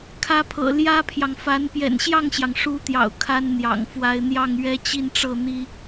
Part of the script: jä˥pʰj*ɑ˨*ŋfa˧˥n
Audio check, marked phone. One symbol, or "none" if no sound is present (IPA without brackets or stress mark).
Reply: ɑ˨